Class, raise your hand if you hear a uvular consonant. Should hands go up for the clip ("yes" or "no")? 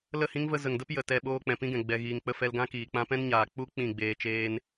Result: no